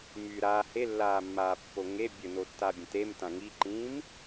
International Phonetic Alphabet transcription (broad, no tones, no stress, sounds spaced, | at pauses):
m y ɾ a h e lː aː mː aː pː o ŋ e bʲ ə n o tː a bʲ ə̃ t e m t ã ŋ i ǃ ĩː m